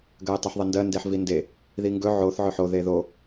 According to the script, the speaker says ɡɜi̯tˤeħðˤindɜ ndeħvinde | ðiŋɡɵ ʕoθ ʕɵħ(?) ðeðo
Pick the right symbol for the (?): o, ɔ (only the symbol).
o